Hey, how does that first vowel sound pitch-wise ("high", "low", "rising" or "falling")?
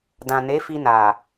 low